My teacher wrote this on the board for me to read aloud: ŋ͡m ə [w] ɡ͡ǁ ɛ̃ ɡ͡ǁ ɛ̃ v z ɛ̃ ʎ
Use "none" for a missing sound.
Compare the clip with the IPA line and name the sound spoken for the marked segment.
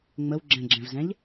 w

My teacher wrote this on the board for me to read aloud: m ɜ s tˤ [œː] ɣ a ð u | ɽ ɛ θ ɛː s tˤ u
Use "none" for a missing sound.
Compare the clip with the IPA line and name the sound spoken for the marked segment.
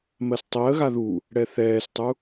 əː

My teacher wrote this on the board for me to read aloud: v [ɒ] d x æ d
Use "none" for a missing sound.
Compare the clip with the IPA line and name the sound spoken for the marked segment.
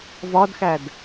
ɒ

